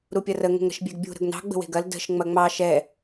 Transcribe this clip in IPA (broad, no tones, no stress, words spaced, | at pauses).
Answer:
ɾupʲɐrə ŋə̤ŋɾə̤ʃbʲeɡbʲṳ ɾə̤ɡnɑ̤ ɡ͡bə̤we̤ɡɐl də̤ʃ ŋ͡mɐŋ͡mɑ ʃɛ